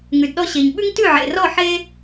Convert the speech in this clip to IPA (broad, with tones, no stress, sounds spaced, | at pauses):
ŋ ʉ˨ d ɗ ɔ˧ ɕ e˨ ɲ ɓ ʉ˦ ŋ t ʉ˦˨ ʕ ḛ˨ r ɔ˦˨ ħ e˦